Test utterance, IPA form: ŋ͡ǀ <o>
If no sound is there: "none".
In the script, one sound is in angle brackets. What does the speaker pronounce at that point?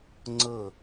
ɤ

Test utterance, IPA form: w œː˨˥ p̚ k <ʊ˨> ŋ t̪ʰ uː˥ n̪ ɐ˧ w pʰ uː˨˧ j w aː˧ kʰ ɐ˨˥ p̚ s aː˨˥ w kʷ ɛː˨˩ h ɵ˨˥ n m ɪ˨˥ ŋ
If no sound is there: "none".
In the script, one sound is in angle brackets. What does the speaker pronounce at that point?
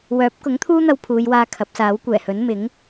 ʊ˨˥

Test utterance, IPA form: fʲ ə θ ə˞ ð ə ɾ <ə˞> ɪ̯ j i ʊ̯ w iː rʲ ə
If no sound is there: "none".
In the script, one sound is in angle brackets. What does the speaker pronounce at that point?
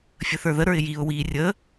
ə˞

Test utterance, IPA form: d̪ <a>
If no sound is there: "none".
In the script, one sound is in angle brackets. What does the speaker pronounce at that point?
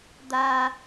a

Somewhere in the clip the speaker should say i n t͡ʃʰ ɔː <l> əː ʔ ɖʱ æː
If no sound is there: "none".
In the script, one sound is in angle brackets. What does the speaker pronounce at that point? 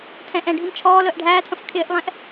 l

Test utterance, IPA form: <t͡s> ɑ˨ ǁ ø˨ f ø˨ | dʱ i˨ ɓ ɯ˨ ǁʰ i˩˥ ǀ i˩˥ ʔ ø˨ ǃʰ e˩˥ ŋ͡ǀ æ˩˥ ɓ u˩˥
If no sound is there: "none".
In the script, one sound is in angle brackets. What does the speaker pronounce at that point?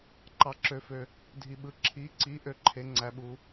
ǃ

